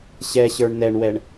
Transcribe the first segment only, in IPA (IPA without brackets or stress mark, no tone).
ɕ